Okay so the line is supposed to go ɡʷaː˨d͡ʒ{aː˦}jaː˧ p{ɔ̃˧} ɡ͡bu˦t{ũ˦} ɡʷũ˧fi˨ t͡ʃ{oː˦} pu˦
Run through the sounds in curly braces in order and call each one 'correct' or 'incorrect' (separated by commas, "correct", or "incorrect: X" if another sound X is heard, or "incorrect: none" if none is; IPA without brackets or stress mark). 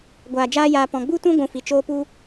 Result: correct, correct, correct, correct